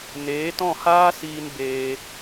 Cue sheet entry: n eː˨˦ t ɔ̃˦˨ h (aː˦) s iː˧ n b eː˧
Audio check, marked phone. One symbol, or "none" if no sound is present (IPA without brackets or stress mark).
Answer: aː˦